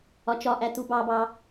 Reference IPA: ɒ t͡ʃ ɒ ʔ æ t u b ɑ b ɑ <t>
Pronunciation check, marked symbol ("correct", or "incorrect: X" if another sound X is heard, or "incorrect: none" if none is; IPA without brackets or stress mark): incorrect: none